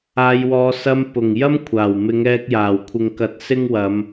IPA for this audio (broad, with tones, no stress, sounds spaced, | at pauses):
aː˨˧ j w ɔː˨˧ s ɐ˧ m p ʊ˨˩ ŋ j ɐ˥ m kʷʰ aː˨˩ w m ɪ˨˧ ŋ ɛː˧ k̚ j aː˨˩ w kʷʰ ɪ˨ ŋ k ɐ˨˥ t̚ s ɪ˥ ŋ w ɐ˨˧ m